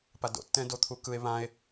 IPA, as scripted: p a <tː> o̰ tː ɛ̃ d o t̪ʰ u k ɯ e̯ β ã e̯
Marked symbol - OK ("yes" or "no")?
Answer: no